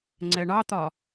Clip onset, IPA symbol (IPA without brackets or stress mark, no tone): ŋ͡ǀ